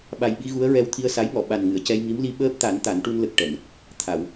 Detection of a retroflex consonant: present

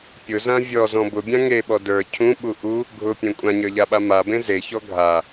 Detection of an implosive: present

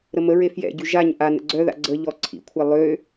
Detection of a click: present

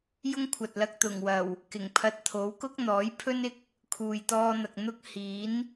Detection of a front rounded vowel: absent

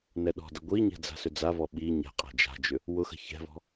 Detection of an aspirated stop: absent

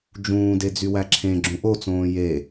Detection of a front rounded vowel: present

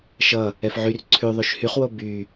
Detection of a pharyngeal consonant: present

